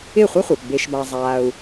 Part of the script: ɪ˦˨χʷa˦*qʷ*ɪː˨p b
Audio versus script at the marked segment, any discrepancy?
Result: yes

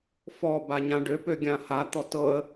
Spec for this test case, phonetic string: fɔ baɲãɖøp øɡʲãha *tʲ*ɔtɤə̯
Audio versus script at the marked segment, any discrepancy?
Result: yes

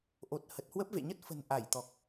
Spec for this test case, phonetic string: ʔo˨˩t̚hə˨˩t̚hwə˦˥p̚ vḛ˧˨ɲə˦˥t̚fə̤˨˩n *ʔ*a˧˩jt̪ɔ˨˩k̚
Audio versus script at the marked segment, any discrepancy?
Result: no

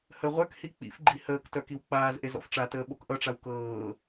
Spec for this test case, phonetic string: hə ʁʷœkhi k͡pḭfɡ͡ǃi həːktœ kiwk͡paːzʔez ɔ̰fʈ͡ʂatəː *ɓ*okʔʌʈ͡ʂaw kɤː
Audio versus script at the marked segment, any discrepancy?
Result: no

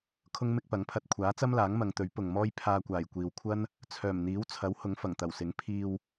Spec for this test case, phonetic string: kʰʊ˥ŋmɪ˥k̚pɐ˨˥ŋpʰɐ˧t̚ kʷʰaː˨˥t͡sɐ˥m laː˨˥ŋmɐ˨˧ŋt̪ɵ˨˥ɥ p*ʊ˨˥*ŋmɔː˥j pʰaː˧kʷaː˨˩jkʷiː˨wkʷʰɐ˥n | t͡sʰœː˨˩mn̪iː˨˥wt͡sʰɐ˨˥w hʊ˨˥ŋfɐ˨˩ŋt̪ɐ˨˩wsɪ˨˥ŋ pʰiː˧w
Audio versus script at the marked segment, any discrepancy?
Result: yes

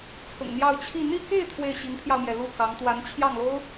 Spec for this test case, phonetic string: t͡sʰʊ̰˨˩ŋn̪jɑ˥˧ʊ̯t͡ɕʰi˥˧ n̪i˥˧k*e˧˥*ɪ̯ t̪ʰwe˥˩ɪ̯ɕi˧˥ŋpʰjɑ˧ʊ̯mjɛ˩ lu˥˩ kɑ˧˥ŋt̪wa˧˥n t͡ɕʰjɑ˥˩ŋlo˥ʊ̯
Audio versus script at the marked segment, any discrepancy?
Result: yes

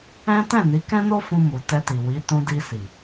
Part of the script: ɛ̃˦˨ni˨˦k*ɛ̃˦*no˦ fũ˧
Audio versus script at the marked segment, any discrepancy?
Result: no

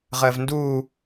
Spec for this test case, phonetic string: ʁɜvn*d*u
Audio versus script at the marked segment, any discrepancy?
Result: no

